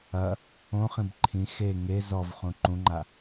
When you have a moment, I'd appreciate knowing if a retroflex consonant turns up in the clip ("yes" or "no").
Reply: no